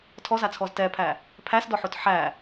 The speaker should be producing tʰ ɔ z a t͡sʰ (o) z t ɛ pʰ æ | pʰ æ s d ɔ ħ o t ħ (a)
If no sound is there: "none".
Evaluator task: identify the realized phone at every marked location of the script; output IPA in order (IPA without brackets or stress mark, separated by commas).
ɔ, æ